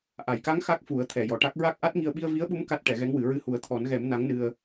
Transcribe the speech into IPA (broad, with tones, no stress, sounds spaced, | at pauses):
ʔ a˨˩˨ j k a˧˥ ŋ x a˦˥ k̚ f u˨˩˦ ə̯ t̪ʰ ɛ˨˩ j ɔ˨˩˨ ʈ a˦˥ k̚ ɹ a˦˥ k̚ ʔ a˦˥ t̚ ŋ i˧ ə̯ ɓ i˧ ə̯ v i˧˥ ə̯ ɓ u˧˥ m k a˦˥ t̚ ʈ ɛ˨˩˦ ɣ ɛ˧˥ ŋ w ɨ˨˩˦ ɹ ɨ˧˥ h u˨˩˦ ə̯ t̪ʰ ɔ˨˩˦ n ɣ ɛ˨˩˦ m n a˧˥ ŋ n ɨ˧ ə̯